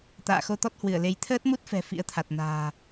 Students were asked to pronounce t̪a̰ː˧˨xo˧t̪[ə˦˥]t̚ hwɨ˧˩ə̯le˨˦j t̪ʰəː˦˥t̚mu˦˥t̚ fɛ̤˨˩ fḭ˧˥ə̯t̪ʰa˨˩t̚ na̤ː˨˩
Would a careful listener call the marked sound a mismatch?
yes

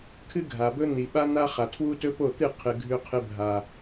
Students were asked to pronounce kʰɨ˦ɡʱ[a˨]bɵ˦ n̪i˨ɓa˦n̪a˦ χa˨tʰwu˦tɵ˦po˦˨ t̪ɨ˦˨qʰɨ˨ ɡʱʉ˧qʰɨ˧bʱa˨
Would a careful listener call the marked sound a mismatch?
no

